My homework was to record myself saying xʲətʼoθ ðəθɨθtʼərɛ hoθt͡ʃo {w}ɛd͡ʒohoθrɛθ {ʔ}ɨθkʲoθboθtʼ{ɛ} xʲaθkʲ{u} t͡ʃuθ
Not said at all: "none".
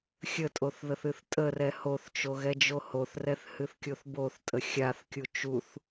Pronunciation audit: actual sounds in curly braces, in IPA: ɣ, h, ə, u

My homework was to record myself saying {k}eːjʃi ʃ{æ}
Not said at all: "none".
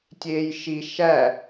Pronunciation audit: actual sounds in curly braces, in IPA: tʲ, æ

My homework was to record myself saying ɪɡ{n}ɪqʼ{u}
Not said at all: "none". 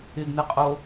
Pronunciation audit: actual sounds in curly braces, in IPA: n, o

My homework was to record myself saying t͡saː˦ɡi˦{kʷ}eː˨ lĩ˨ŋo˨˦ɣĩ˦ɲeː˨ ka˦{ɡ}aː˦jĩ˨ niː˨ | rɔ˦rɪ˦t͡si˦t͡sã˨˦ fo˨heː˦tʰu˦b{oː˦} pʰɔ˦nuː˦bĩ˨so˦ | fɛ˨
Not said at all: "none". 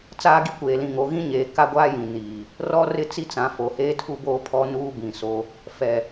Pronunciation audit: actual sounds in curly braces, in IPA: kʷ, ɡʷ, oː˦

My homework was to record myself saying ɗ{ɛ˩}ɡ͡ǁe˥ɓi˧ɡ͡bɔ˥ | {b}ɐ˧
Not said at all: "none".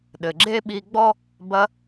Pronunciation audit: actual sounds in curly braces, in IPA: ɘ˩, b

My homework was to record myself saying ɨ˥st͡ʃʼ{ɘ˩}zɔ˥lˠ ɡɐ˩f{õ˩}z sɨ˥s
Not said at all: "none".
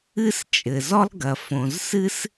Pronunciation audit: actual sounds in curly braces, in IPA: ɘ˩, õ˩

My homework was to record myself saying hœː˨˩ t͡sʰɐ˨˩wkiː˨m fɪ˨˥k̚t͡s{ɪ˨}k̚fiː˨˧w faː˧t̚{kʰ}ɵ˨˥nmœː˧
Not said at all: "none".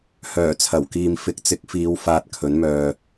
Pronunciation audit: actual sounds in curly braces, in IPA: ɪ˨˥, kʰ

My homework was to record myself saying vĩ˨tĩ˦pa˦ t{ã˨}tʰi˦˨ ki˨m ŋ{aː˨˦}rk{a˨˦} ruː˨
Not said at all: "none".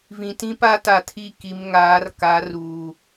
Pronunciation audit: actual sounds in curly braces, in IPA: a˨, aː˨˦, a˨˦

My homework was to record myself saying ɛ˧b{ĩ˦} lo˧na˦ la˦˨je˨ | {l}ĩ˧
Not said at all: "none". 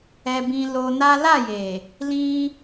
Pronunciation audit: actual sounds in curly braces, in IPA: ĩ˧, l

